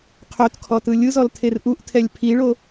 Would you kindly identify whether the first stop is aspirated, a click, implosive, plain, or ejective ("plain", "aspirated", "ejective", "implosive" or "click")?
aspirated